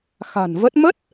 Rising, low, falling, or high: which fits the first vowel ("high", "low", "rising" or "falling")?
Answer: low